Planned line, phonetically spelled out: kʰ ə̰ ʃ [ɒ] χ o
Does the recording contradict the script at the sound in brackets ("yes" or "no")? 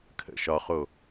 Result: no